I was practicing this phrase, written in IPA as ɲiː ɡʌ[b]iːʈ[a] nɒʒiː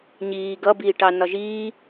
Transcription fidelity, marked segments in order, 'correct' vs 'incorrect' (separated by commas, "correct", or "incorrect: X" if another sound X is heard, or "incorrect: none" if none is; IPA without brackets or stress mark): correct, incorrect: ɑ